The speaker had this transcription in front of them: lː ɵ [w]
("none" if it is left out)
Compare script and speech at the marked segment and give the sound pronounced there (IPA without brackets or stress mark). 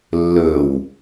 w